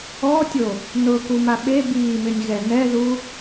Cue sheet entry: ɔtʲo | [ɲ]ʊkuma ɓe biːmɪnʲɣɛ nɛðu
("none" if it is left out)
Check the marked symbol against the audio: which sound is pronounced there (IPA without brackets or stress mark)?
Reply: n